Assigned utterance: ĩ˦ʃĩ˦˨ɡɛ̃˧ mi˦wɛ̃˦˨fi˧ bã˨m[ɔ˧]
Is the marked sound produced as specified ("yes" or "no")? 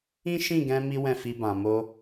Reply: no